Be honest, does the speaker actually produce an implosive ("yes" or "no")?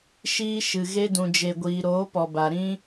no